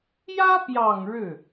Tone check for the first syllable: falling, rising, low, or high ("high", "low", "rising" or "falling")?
high